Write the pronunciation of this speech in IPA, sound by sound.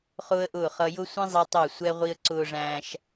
χʊː˦ə̯ʔʊː˦˨χʌ˧ jʊ˦sʷĩ˦zˤi˧ tˤʊ˦˨ə̯sʷɛ˦ ʁʷi˧ə̯ǀʊː˧ʐæ̃ː˧ʃ

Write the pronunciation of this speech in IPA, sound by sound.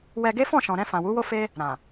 wɛ˧ɡe˦ fɔ̃˦˨ʃɔ̃˨ɾɛ̃˧ fã˨wu˨˦wo˦ fe˦ | ɾã˨

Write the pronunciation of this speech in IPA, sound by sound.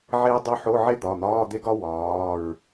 ʕeː˥dˤo˥ ħo˧˥˧ ʕe˥d̪ɒ˩˧˩ n̪ɒː˧˥˧d̪e˥ɡɒ˥ wɒː˩˧˩ɹ

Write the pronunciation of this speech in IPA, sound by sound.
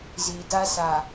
zi˨da˦sa˨

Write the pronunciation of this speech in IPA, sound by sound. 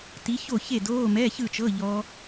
ti˨˥ço˥˨çe˥˨doː˧˥˧ mɛ˧˥˧çɯ˥˨t͡ʃɤ˧˥˧ ʎɔ˦˥

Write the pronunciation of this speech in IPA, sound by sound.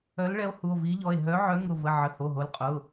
œ˨˥lɭɛ˨˥o̯hu˩˧˩o̯ vi˨˥ʎɔ˩˧˩e̯ ɦœ˨˥ʕœ˨˥ŋʊ˩˧˩ və˩˧˩ ʕə˩˧˩ho˩˧˩ɦo˩˧˩lqʼʊ˩˧˩

